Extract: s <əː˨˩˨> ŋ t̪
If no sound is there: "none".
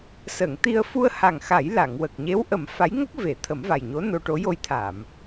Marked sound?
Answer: əː˨˩˨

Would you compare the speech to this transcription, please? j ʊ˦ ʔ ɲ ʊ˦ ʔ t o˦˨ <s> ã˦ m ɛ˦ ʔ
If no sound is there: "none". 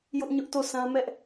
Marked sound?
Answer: s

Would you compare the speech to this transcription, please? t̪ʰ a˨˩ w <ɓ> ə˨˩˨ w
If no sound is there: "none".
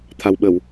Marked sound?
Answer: ɓ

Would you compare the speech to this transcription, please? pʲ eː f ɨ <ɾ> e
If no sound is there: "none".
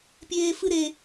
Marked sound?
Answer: ɾ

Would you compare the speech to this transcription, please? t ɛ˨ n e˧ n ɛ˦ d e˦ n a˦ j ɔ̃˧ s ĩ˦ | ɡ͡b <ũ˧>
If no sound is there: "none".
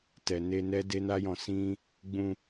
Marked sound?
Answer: ũ˧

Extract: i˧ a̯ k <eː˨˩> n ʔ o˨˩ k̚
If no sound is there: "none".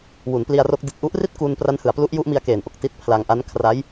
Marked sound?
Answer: eː˨˩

